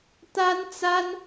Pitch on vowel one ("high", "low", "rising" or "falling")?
high